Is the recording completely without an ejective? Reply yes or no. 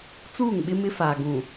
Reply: yes